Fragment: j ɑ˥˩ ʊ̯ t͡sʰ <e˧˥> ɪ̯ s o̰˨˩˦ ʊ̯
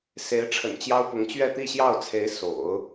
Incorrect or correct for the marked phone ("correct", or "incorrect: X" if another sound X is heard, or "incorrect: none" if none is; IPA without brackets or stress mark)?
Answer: correct